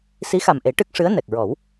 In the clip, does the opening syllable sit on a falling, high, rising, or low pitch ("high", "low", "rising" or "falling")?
rising